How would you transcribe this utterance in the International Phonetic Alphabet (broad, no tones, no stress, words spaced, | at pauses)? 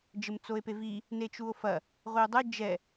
d͡ʒɘmt͡soe̯pevi | net͡ʃuo̯fɐ | ʁʷio̯dˤɘ d͡ʒɛ